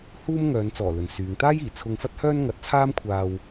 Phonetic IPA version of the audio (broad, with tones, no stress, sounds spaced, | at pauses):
h uː˥ m ŋ œː˨˧ n t͡s ɔː˨˩ l ɵ˨ n s yː˨˧ ŋ t̪ aː˥ j iː˨˩ t͡sʰ ʊ˧ ŋ f ɐ˥ t̚ h œː˥ n ŋ ɐ˨˥ t̚ t͡sʰ aː˥ m kʷʰ aː˧ w